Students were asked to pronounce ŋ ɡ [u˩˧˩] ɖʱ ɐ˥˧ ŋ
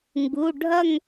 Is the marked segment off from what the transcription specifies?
no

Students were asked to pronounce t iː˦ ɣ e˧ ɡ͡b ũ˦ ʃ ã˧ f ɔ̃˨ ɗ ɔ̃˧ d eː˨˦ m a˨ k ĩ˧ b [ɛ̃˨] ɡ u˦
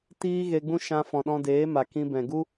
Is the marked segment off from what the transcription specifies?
no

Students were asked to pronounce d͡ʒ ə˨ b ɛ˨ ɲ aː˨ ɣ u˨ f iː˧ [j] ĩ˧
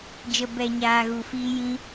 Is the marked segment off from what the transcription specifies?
no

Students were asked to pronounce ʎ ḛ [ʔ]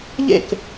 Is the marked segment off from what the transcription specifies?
yes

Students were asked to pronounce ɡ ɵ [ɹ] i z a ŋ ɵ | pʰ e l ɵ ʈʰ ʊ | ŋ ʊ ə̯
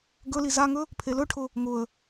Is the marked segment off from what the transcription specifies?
yes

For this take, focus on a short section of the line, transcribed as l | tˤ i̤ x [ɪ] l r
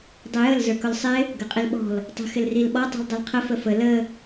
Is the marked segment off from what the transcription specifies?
no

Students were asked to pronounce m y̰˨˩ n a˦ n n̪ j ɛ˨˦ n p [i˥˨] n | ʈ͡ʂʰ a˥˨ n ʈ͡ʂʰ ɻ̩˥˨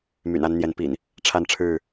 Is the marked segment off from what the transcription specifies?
yes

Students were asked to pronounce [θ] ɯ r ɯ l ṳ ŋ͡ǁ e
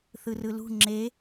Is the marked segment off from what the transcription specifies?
no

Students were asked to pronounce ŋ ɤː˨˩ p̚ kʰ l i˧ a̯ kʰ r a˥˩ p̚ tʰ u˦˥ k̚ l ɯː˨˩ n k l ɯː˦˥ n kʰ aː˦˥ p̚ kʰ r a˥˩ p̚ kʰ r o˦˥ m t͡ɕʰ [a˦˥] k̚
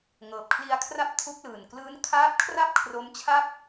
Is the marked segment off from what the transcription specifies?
yes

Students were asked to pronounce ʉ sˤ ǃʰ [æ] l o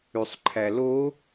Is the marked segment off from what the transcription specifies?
no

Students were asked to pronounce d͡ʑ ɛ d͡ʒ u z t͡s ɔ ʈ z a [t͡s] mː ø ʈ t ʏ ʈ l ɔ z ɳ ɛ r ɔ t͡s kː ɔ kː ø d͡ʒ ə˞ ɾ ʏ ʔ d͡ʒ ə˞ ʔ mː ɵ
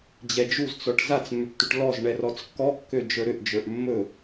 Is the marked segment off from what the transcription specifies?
no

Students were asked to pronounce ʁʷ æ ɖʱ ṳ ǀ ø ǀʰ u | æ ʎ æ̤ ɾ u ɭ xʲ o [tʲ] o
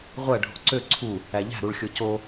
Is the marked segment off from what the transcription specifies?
yes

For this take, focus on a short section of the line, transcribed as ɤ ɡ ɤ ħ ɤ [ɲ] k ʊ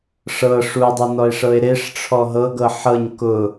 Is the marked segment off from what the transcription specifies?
no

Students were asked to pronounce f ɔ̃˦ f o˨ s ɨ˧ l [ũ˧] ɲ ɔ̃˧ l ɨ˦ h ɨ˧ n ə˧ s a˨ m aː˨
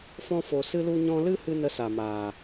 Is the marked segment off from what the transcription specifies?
yes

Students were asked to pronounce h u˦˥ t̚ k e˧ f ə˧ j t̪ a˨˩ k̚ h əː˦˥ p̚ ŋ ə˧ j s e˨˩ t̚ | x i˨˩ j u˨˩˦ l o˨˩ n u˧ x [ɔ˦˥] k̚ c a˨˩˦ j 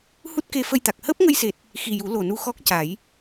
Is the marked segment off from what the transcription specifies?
no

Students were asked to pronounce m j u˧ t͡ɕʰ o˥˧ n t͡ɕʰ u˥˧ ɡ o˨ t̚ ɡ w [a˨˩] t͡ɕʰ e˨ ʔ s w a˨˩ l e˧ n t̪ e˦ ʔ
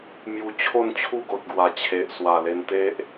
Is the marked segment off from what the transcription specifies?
no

